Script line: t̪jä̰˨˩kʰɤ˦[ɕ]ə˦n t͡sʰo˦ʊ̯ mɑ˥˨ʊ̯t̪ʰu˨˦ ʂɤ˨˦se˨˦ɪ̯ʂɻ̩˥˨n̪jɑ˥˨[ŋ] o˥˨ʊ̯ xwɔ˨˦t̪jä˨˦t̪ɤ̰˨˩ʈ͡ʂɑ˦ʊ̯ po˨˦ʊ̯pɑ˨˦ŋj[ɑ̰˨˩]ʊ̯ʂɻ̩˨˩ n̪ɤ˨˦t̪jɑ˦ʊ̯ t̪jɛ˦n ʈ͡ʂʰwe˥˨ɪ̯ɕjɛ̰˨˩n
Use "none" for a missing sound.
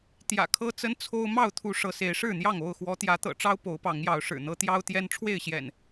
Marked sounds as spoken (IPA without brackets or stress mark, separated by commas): t͡s, ŋ, ɑ˨˦